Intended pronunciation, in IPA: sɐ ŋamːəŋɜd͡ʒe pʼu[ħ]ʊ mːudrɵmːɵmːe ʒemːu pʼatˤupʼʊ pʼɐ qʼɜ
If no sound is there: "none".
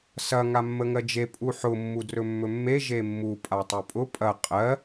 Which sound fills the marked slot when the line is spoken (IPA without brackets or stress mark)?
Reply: ħ